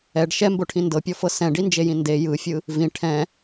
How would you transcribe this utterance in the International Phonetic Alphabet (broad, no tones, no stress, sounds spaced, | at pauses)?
ɛ ɖ ʃ ɛ m b o ʈʰ ĩ n d ɤ pʲ ɔ f ɤ s ɛ̃ ɖ i n d͡ʒ e j ĩ n d e j ɯ fʲ ɯ | v ĩ ʈʰ ɛ̃